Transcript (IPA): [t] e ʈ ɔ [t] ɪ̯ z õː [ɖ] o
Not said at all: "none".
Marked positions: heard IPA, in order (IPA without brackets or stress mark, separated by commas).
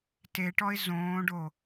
t, none, ɖ